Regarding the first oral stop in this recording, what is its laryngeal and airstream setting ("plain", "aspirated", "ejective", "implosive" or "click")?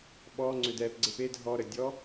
implosive